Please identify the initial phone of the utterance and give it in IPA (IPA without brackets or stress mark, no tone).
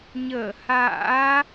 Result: ɲ